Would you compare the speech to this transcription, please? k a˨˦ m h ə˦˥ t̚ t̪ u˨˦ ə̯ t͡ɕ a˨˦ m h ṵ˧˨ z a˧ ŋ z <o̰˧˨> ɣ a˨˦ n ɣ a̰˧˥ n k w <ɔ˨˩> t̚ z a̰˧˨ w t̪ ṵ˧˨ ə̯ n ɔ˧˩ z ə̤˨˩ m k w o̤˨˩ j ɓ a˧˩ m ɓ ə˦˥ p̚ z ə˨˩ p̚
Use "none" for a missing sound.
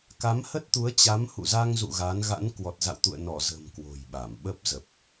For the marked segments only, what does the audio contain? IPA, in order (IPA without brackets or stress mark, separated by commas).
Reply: ṵ˧˨, ɔ˨˩